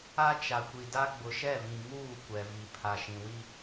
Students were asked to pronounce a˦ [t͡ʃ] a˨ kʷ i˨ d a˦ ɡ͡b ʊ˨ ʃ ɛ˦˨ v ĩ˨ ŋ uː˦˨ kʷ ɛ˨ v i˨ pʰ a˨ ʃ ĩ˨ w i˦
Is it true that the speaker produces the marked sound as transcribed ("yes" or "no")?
yes